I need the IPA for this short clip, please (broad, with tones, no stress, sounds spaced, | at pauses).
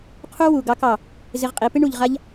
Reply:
qʰ u˦ w u˨ ɡ ɑ˧ k ɑ˨ | z ɪ˧ ʁ qʼ i˨˦ p ɪ˦ ɳ u˨ ʎ ʁ a˧ ʎ